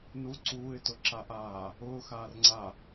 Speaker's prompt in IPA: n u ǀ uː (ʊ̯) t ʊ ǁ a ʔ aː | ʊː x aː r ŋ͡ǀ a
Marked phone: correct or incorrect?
incorrect